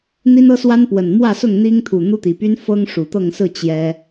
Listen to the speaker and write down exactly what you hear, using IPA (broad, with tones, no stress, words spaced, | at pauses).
n̪i˦nɤ˦swa˦npwə˨˩n mwä˥˨sʊ˥˨ŋn̪i˦ŋt̪ʰu˨˩ n̪u˦t̪i˨˩py˦n fɤ˦ŋʂu˨˩t̪ɤ˥˨ŋ sɹ̩˥˨ t͡ɕjɛ˦